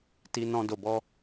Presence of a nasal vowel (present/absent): present